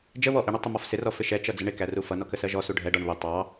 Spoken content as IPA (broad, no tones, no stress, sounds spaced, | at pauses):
d͡ʒ ə β ɔ ʔ ɪ ɳ ə tˤ ɪ m ɔ f s ɪ r ɔ f ɪ ʃ ɛ t͡ʃ ʌ d͡z ə ɳ ɪ k æ r u f ʌ n ɔ k ə s ɜ ʒ ɔ s u ɖʱ ɛ ɖ ɒ ɳ β ɪ tˤ ɑ